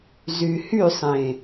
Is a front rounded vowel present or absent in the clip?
present